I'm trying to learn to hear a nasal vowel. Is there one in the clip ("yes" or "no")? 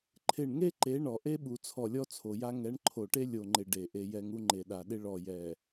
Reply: no